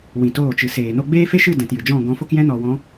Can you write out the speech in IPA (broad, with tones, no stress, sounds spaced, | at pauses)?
w ĩ˨ t oː˦˨ t͡ʃ ɨ˨ s eː˨ n o˧ ɡ͡b eː˦ f e˦ ʃ ɨ˦˨ d ɛ̃˨ t j ɨ˨ d͡ʒ ɔ̃˦˨ ɡ ɔ̃˨˦ f o˦ k j ɛ̃˦ n ɔ˨ w ɔ̃˨˦